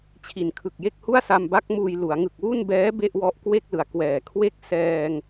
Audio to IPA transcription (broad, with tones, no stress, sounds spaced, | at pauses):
t͡ɕʰ i˨˩ n kʰ ɯ˨˩ k̚ j e˥˩ k̚ h u˥˩ a̯ s a˧ m b a˦˥ k̚ m uː˧ j l u˩˦ a̯ ŋ ɯ˨˩ k̚ w u˥˩ n b ɛː˦˥ b e˥˩ ʔ w ɔ˦˥ ʔ k w e˥˩ k̚ l ɯ˩˦ a̯ k w ɛː˨˩ kʰ w e˥˩ k̚ s ɛː˧ ŋ